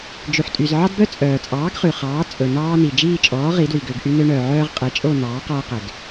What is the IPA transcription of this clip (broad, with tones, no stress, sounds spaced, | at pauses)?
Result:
d͡ʒ ʉ˩ ħ tʼ y˩ z ʕ ɑ˦ d b œ˦ t͡sʼ œː˩ t͡sʼ ɑː˩˥ ɡ χ ʉ˩ χ ɑː˩˥ t͡sʼ ɵ˩ n ɑː˦ n i˩ d͡ʒ iː˦˨ t͡ʃʼ ɔː˩˥ ʁ i˩˥ d w i˩ ɡ ø˦˨ ɡ ʔ y˦ n ø˦ ɳ œː˩ ʕ œː˦ ʁ qʼ ɛ˩˥ t͡ʃʼ o˦˨ n ɑː˩˥ q ɔː˦ q ɛ˩ ɡ